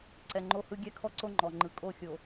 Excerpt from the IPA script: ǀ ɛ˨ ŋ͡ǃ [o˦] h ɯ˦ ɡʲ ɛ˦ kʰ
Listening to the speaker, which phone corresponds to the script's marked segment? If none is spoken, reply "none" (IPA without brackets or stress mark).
o˦